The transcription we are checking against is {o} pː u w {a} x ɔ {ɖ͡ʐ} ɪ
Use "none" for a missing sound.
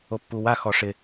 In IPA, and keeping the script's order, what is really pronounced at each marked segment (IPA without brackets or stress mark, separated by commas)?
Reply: o, a, ʂ